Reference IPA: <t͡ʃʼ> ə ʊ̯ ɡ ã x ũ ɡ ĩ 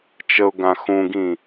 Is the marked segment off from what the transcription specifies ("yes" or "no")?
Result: yes